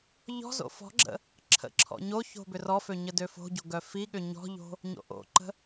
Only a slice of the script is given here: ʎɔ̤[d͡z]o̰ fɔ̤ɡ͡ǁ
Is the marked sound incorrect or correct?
incorrect: z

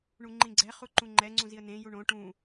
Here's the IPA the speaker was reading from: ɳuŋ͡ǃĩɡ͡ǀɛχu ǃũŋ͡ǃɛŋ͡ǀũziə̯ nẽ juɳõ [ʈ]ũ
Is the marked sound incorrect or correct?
correct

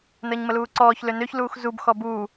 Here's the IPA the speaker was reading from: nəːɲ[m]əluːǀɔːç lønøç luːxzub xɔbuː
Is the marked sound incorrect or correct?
correct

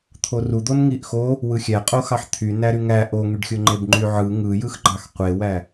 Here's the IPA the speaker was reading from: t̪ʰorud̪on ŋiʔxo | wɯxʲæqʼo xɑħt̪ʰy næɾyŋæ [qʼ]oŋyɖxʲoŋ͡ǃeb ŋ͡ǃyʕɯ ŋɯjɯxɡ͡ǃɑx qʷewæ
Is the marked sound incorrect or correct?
incorrect: ʔ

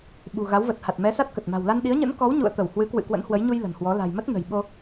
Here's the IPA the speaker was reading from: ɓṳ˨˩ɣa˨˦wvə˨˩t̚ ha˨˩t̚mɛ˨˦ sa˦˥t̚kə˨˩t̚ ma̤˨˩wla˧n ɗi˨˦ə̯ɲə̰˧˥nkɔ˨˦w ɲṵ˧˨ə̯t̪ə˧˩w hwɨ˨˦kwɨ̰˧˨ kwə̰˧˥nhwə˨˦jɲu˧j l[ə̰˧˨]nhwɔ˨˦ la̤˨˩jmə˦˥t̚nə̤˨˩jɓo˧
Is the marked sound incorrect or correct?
incorrect: ə̤˨˩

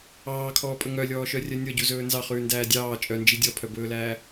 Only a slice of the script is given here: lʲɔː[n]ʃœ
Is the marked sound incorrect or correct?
incorrect: none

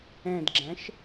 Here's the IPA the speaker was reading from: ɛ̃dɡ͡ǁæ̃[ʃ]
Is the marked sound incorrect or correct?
correct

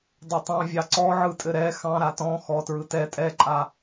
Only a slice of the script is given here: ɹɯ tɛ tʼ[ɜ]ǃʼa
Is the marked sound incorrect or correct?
incorrect: ɛ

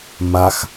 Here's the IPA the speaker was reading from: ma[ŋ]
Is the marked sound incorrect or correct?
incorrect: x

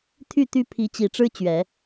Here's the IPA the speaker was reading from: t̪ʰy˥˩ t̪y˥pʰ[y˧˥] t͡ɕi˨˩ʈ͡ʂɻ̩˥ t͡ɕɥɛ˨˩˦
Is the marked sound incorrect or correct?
incorrect: i˧˥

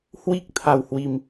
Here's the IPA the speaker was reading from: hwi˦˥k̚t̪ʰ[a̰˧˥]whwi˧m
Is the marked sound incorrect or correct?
incorrect: a˧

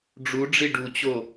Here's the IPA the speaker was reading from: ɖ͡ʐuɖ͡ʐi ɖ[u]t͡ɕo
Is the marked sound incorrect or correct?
correct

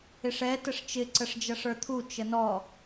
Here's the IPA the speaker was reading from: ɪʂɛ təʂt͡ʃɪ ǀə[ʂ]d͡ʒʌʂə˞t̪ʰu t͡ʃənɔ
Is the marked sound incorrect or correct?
correct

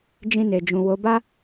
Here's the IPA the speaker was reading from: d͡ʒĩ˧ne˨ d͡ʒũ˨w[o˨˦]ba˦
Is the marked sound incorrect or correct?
correct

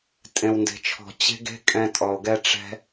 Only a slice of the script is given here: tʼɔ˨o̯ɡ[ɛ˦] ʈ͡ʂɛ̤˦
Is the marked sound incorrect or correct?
correct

